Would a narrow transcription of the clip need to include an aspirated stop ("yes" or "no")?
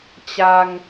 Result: no